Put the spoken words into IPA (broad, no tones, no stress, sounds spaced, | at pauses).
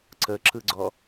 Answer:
ǀ ə ǁ ɯ ɡ͡ǀ ɔ